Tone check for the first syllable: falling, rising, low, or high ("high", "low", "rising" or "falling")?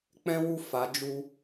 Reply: high